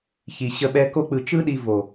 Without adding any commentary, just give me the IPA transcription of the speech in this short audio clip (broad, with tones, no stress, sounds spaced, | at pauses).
ç i˨ ɕ ə˧ ɓ ɛ˧ k o˧ k͡p ɯ˨ t͡ʃ ɯ˦ ɗ i˧ v o˨